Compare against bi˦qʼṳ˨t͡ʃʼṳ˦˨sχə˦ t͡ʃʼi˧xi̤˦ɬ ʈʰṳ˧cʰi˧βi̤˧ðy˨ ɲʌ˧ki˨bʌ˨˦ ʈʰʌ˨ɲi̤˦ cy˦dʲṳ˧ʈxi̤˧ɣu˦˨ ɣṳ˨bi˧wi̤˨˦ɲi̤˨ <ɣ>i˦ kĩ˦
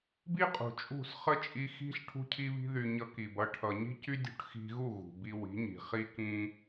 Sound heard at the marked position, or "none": χ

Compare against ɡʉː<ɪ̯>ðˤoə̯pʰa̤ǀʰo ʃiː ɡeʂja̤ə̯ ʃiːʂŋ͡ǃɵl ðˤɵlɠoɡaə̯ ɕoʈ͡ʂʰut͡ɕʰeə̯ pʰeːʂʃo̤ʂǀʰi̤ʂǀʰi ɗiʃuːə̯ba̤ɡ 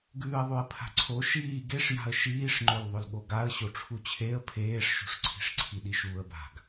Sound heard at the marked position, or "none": ə̯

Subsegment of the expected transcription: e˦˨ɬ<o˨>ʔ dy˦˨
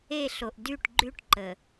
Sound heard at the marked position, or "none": o˨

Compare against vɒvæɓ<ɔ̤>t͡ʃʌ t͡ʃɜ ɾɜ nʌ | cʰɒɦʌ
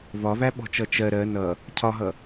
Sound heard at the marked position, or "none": ɔ̤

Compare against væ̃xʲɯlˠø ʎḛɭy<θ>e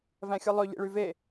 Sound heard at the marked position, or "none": v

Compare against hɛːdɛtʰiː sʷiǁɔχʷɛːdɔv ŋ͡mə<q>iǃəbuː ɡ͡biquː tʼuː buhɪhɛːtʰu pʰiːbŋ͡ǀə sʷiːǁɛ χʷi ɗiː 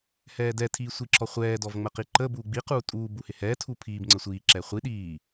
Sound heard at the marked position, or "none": q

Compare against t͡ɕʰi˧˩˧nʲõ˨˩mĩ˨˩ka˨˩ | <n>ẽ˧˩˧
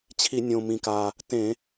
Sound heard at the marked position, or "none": t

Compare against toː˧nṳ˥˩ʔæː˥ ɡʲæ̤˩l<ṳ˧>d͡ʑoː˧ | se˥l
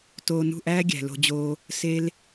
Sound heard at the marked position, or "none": o̤˧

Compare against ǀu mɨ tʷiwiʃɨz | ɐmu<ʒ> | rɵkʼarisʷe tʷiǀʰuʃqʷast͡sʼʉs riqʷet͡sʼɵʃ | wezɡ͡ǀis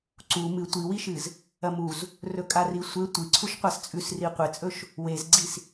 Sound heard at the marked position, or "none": z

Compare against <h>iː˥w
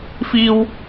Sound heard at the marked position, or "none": f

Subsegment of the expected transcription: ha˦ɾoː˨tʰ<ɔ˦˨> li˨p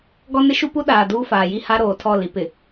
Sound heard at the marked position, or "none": ɔ˦˨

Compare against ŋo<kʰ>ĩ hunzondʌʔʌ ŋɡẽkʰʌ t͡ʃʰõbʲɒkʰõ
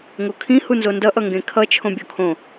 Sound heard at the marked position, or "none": kʰ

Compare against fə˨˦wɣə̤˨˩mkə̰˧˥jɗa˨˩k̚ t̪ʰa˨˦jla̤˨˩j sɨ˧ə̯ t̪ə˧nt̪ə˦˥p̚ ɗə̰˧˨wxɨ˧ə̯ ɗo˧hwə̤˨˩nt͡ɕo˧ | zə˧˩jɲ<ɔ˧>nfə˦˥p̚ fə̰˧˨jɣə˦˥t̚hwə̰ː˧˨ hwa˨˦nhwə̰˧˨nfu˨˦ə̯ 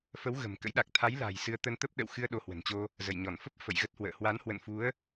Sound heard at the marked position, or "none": ɔ˧˩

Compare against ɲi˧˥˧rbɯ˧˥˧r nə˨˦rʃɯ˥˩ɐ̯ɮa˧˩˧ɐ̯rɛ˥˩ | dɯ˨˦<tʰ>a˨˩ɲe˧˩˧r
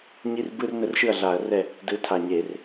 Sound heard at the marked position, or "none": tʰ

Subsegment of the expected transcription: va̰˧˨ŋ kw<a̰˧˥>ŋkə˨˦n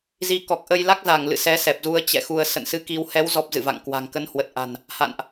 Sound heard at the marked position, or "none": a̤˨˩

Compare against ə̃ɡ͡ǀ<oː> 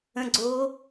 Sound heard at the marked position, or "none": oː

